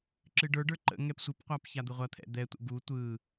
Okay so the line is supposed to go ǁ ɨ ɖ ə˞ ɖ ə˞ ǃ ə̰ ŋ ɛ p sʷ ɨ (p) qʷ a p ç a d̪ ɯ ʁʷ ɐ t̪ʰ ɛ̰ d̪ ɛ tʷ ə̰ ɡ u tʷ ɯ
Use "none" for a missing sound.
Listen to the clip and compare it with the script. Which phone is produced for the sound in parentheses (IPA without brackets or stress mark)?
p